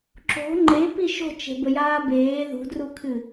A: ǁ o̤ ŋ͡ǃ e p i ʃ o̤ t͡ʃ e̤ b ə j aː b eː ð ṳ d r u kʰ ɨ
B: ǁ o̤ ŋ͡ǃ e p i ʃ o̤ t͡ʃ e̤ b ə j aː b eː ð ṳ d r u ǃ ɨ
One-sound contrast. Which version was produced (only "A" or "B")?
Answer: A